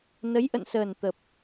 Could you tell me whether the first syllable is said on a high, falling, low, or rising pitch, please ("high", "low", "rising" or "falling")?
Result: rising